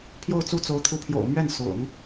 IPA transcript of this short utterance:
pʰjo˥˧ʊ̯t͡su˥˩t͡so˧˥ʊ̯ t̪ʰu˧˥pʰjo̰˨˩ʊ̯mɥɛ˥˩n sʊ̰˨˩˦ŋ

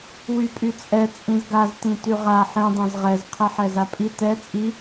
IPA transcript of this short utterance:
wypʼyt͡sʼɛ t͡sʼĩzɡaz tĩtyʁa ħĩ dˤɛ̃zʁɛz qʰɛħɛzapʼi tɛ t͡sʼi

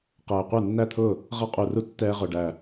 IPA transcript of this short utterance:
qɛː˨˩qʷə˞˥˩nːæ˥˩t̪ʰʊː˥˩ | ʁʌ˧qʼu˨˩ru˧ tːɛː˧ʁʊ˨˩ɖæ˨˩

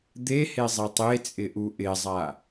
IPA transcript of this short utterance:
d̪e hezˤetˤet͡sʼɪ ʔuʔɪzˤa

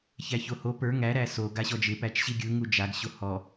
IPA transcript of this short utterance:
çæçoho pə˞ ŋæ ɾæso ɡaɕɔd͡ʒɪ pæt͡ʃɕiɡʲɯ ŋud͡ʒaɡɕo hɔ

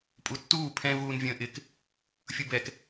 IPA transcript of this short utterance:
pʼutːuː pʰɛ̃ vuːnvʲə̃ːʔɪk | fʲubɛk

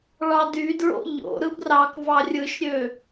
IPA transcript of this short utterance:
ɭɑdydɹo̰ ʎo̰ ɾɯbrɑkvɑ rʲɯʃɾʲø

